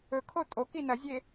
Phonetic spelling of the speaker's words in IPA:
ɵ kʰ o tʼ o k i n ɐ zʲ e

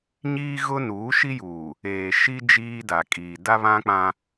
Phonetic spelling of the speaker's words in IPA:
ɲ iː˦ ɣ ʊ˦ n uː˨˦ ʃ i˦ j uː˨ | eː˨ ʃ i˦ d͡ʒ iː˦ d a˨ kʼ iː˨ d a˦ β ã˦ k͡p ã˦

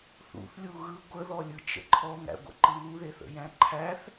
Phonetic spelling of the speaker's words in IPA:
θ ṵ θ lʲ u ɣ ɯ ɡʷ ə ð ɔ lʲ ɯ t͡ʃ ə̰ ǃʰ ɔ ŋ æ̰ ɡʷ ə̰ ǃ ɯ w u ð e θ ə̰ j æ̃ ǃʰ æ θ

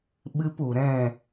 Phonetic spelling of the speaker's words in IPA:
ɓ ɨ˦ p u˨ ɾ ɛ̃˦˨

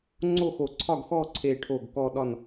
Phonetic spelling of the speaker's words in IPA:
ŋ͡ǀ o˥˨ x o˧˩ ǀʰ ɒ˥˨ ɡ x ɔ˥˨ ǀʰ e˧˩ ʈʰ o˧˩ ɡ k ɔ˥˨ ɗ ɒ˥˨ n

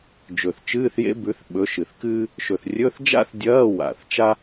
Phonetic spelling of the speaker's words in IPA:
d͡ʒ ɵ˨˩ θ t͡ʃ ɨː˧˥˧ θ j ḛ˥ b ʉ˨˥ θ ɓ ɵ˨˥ ʃ ɨ˨˩ θ k ɨː˥ | ʃ ɵ˨˩ θ rʲ ɵ˧˥˧ θ d͡ʒ a̰˥ θ dʲ ɐː˧˥˧ w a̰˨˩ θ t͡ʃ a˥

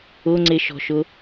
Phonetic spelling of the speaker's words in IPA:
ʊ ŋ͡ǀ ɪ ʃ ɔ̤ ʃ ʊ

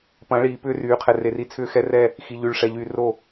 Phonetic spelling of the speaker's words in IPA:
p ɐ̃˨˦ ɭ iː˨ p ʏː˦ r yː˨ qʰ ɛ˨ r e˨ r i˦ t͡sʰ ʏː˦ x ɛ˦ r ɛ˦˨ | x i˨ ʎ y˨ ɭ ʂ ɛ˨ ʎ yː˨ r o˦˨

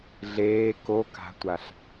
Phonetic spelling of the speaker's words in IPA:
ɮ eː k o k a̤ tʷ a ɬ

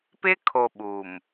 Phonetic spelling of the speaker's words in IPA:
p ɪ˦ kʰ o˨ ɓ u˨ m

